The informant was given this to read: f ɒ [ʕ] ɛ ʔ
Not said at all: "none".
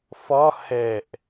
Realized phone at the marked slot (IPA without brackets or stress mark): h